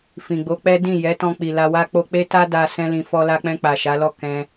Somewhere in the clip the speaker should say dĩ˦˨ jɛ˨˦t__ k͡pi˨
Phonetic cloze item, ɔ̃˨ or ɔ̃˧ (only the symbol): ɔ̃˧